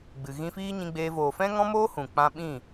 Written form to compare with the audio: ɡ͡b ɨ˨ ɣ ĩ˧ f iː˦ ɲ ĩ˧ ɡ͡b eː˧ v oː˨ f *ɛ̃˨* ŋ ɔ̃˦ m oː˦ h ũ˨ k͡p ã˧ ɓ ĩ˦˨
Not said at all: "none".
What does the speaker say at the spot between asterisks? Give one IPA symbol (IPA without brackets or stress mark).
ɛ̃˦